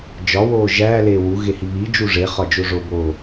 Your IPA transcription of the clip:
d͡ʒ ɒ w oː ʒ æː l eː w u ɣ e h i β i d͡ʒ u ʐ e χ ɒ d͡ʒ o ʐ o b oː

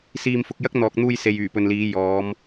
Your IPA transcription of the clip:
s iː˨ m f ʊ˨ k̚ j ɐ˥ k̚ n̪ ɔː˨ k̚ n̪ uː˧ j s e˨ j yː˨˩ p ɵ˨ n l iː˨˧ j ɔː˨˧ m

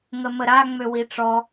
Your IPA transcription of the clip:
ŋ ə m ə ɾ a ŋ͡m ø w i ʈ͡ʂ ɔ

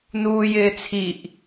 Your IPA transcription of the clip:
n uː j ɪː t͡sʰ i ʔ

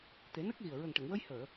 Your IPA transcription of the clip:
t̪ e˨˩˦ n ə˦˥ k̚ ɣ i˨˩ ə̯ ɹ ə˨˩ ŋ ʈ ə˨˩˨ ŋ w ə˧ j h əː˨˩˨

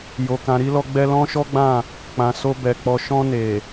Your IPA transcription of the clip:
j o˨ k ã˨ ɾ i˧ l ɔ˧ ɡ͡b ɛ˧ l ɔ̃˦ ʃ ɔ˦ ɡ͡b ã˦˨ | k͡p ã˨ s o˧ b ɛ˨ k͡p ɔ˨ ʃ ɔ̃˧ n e˨

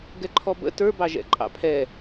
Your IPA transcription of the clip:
ɡ ɛ ǃʰ ɔ b ə̰ t ə˞ b ɑ ʒ ɛ̰ ǃʼ ɑ̰ pʰ ɛ

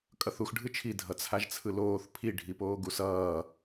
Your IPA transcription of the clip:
kʼ ʌ θ u x ɖʱ ɯ t͡ʃʰ i dʱ ʌ t͡sʰ a ʒ t͡sʰ ɯ l oː θ pʰ i ɖʱ i p oː ɡ u s ʌː

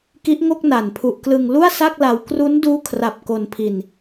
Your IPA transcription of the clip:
k i˦˥ ʔ ŋ o˥˩ k̚ n a˨˩ n pʰ u˨˩ ʔ k l ɯ˧ ŋ l u˥˩ a̯ s a˥˩ k̚ l a˧ w k r u˦˥ n d uː˦˥ kʰ r a˨˩ p̚ k o˧ n pʰ i˧ n

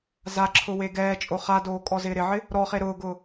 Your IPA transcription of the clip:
z a ǁʰ ʊ w e ɡ ɛː t͡ʃʼ o χ a d oː kʼ ɔ z ɪː ɾ ɪ ʕ ɪ | ɾ ɔ χ e ɾ ʊː ɡ ʊː

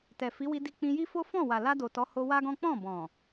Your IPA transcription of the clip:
t ɛ˨ f i˨˦ w i˧ d i˧ k͡p ĩ˧ j i˦ f o˦ f ɔ̃˦˨ w a˨ l a˧ d o˨ t ɔ˨˦ h o˧ w a˦ ɡ ɔ̃˦ k͡p ɔ̃˦˨ b ɔ̃˨

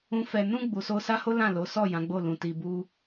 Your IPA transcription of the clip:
ũ˧ f ɛ˨ n ũ˧ ɡ͡b u˨ s o˧ s a˦ h o˦ l ã˦˨ l o˨˦ s ɔ˦˨ j ã˨˦ ɡ͡b o˦˨ l ũ˨ t i˧ b u˦

